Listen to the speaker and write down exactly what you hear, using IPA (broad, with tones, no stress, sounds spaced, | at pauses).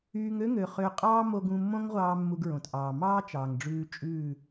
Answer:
yː˧ ŋ ø˦ ŋ ø˨ χ ø˧ qʼ ɑː˦ m o˧ ɡ ũ˧ mː õ˦ ŋ ʁʷ ɑː˧ mː u˧ ɡ ɹ õ˨ t ʔ ɑː˨ m ɑː˦ t͡ʃ ɑː˨ ŋ ɖ͡ʐ ʉː˧ t͡ʃʼ ʉː˦˨